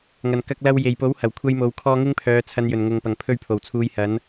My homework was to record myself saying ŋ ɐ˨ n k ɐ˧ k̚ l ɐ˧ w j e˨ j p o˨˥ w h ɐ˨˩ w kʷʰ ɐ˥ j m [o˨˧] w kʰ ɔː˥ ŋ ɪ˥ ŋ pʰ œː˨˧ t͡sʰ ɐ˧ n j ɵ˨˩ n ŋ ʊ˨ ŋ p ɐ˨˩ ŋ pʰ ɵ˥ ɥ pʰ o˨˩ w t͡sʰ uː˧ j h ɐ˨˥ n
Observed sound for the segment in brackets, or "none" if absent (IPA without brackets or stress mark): o˨˧